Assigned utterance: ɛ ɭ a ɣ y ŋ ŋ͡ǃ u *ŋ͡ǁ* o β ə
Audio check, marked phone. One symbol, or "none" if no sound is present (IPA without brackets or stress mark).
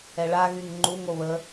ŋ